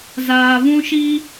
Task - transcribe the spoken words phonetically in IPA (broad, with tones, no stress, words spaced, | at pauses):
zaː˨vũ˦ʃi˦